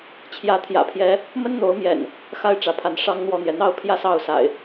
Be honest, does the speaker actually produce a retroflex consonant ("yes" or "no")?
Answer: yes